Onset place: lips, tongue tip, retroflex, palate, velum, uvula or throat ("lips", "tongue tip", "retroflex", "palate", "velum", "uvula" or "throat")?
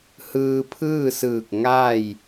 throat